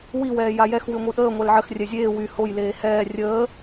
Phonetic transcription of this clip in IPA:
w i w ɛː j a j ɛ x w y ŋʷ i ʔ əː ŋʷ ɛ l ʕ ə x rʲ ɛ zʲ eː w y h o j l eː h ɛː rʲ əː

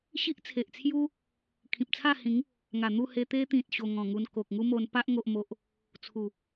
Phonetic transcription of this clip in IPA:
ɕ i˦ ʔ t͡sʰ e˨ ʔ t͡sʰ j u˦ | kʰ ĩ˨ p̚ t͡sʰ a˥˧ h ĩ˨˦ ŋ | ŋ a˨˩ n̪ u˥˧ h e˧ t̪ e˧ t̪ ĩ˨ t̚ ɕ o˧ ŋ ɔ̃˨˩ ŋ u˧ n k o˨ k̚ ŋ u˦ m o˧ n p a˦ ʔ ŋ o˦ ʔ m o˦ ʔ | t͡sʰ u˨˩

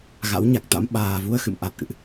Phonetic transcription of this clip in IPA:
ɣ a̰˧˥ w ɲ a˨˩ k̚ t̪ a̰˧˥ m ɓ aː˨˩ v u˧ ə̯ x ɨ̰˧˨ m ʔ a˨˩ t̚ ʔ ɨ̰˧˨ ʔ

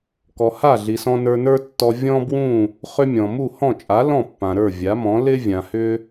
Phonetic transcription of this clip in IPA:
k ɔ˩ h a˥˩ ɮ i˩ s ɔ̃˧ n ə˞˧ n ə˞˥ tː ɔ˧ vʲ ɔ̃˥ b w ũ˥˩ | χ ʏ˥ mʲ ɔ̃˩ m u˥˩ h ɔ̃˥˩ t͡ʃʼ a˩˥ l ɔ̃˥˩ pː ã˩ ɾ ə˞˥˩ vʲ a˩˥ m ɔ̃˩˥ l ɪ˥ vʲ ã˩ h ʏ˥

